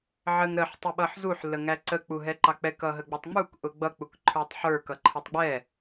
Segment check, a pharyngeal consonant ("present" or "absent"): present